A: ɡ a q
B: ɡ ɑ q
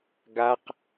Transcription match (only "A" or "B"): A